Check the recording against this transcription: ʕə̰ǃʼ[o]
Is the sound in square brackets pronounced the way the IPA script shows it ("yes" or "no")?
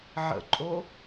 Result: yes